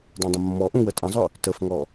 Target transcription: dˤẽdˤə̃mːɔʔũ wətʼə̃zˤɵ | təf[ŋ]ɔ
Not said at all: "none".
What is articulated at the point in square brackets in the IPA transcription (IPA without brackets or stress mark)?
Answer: ŋ